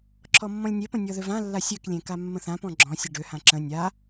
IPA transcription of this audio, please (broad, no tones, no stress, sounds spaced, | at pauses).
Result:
ǁʰ ɔ mː ɔ̃ lʲ nʲ e p ə̃ nʲ ɔ ð ø v ã lː a sʲ ø k lʲ ẽ k a mː ə̃ θ ã p ɔ̃ ɡ͡ǁ ɔ̃ sʲ ə ɖ ø h ã ǁ ə̃ nʲ a